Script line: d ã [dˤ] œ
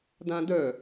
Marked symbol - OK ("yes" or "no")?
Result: no